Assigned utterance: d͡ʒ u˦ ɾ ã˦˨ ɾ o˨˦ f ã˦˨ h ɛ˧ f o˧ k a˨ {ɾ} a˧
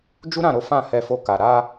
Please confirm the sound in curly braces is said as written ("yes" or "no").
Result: yes